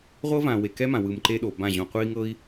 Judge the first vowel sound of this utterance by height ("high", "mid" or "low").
mid